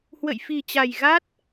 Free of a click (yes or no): yes